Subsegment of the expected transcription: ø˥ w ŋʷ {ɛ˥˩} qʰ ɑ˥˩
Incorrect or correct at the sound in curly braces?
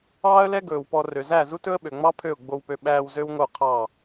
incorrect: œ˥˩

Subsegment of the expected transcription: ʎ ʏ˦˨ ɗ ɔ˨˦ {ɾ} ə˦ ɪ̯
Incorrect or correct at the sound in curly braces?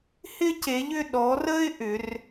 incorrect: r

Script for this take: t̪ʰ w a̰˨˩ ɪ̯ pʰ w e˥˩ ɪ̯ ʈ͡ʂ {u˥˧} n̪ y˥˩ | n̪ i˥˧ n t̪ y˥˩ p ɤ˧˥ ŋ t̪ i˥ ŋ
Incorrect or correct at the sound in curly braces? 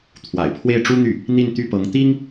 incorrect: u˥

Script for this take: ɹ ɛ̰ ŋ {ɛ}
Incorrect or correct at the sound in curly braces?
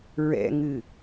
incorrect: ɨ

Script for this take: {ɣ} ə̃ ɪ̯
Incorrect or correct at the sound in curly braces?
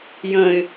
incorrect: j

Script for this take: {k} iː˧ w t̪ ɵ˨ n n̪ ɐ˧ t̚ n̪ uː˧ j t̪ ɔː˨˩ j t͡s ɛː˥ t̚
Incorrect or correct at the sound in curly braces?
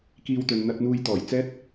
correct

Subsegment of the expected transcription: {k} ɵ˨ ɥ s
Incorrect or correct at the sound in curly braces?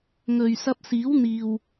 incorrect: ŋ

